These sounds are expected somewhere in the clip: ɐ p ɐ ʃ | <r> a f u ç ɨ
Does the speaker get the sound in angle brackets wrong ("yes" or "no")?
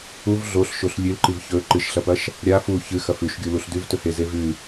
yes